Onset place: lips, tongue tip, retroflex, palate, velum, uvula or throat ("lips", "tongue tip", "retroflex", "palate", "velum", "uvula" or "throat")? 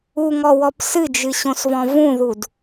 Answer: velum